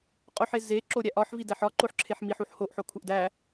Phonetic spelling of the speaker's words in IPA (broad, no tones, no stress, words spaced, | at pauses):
qʼoħe zeǁo ɾʲæʔɒħvidæħ ɒ ǃoħǁʰeħmiħ uħhoʔħo kʰuʔdæ